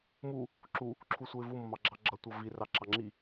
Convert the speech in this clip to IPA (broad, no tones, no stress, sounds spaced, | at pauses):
m u | ǁ u | ǁʰ u sʷ ə˞ ɪ̯ v u m ʌ m ɑ ɡ͡ǁ ɑ ɡ͡ǁ ʌ tʷ ʌ v i r ɑ ǁ ɑ ŋ͡ǁ i